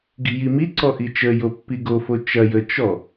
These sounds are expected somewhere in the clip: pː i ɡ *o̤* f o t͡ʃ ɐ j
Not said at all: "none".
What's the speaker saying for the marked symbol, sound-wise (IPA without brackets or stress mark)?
o